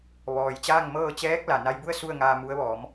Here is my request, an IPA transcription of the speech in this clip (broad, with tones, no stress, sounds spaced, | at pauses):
ʋ ɔː˩ j t͡ɕ aː˥˨ ŋ m ɤː˥˨ t͡ɕ ɛː˧˥ k̚ l a˩ n a˧ j b u˥˨ ə̯ s u˥˨ ə̯ ŋ aː˧ m u˧˥ ə̯ ʋ ɔː˩˧ m